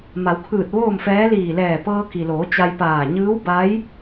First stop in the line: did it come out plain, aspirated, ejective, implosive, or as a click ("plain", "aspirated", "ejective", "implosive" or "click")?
aspirated